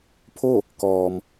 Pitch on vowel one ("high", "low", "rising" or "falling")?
falling